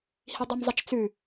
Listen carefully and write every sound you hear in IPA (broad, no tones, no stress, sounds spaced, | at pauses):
h i dˤ ɵ m zˤ ɐ t͡ʃ t͡s ʉ